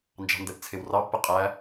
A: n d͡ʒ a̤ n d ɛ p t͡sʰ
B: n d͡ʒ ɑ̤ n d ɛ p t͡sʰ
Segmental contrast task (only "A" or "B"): B